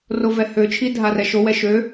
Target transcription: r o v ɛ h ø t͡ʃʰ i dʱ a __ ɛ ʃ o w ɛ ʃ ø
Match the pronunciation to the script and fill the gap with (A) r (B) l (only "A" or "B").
A